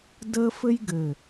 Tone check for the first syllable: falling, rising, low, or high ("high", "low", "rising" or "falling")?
high